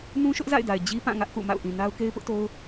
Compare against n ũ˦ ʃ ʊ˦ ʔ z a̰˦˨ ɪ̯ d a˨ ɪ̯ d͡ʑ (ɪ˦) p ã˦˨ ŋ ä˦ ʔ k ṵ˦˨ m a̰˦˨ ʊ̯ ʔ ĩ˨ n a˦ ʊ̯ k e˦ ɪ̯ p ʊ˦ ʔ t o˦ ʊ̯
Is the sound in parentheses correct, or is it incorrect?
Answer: incorrect